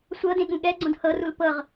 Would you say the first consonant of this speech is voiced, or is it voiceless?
voiceless